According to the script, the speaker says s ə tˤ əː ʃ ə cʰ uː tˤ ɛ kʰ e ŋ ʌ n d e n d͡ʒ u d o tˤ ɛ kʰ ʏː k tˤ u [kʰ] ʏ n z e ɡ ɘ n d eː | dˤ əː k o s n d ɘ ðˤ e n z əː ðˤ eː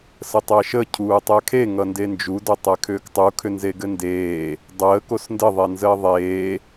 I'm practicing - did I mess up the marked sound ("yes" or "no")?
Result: no